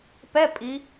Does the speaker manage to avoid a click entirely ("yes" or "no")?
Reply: yes